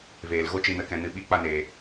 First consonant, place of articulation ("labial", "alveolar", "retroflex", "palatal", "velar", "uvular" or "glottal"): labial